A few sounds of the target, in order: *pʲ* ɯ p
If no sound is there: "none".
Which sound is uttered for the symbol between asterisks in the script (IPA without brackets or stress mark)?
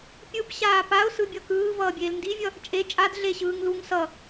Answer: pʲ